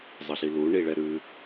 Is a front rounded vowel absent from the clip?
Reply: yes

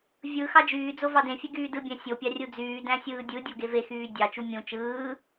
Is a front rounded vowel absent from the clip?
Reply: no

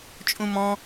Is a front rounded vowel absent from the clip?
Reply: yes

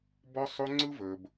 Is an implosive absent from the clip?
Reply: yes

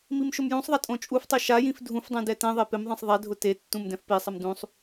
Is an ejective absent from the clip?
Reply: no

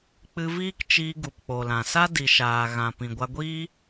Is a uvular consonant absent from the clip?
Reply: yes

